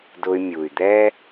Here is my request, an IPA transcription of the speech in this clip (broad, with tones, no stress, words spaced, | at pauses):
dʊ˧y̯mʲu˩y̯d̪ɛ˥